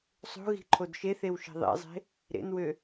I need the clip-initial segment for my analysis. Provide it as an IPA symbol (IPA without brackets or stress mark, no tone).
sˤ